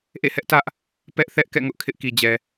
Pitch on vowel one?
falling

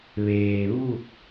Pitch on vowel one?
low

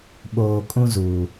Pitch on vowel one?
low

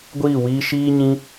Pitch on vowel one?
falling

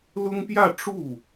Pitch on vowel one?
high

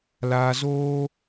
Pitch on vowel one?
low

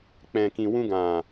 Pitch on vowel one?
low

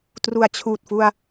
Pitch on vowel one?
low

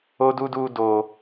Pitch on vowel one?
high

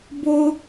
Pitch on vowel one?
low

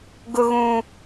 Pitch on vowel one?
low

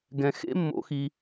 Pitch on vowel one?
low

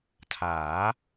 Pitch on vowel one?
rising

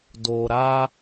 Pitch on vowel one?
low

